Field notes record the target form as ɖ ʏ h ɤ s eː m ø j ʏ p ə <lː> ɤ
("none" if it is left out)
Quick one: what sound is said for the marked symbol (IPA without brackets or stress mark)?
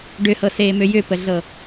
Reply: ɮ